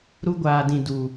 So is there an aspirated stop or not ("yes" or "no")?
no